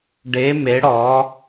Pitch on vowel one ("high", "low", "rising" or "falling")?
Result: rising